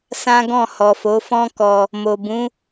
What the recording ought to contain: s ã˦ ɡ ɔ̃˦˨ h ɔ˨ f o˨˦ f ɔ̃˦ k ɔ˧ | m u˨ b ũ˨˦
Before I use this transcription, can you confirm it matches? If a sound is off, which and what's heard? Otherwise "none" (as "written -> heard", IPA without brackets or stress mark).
u˨ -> o˨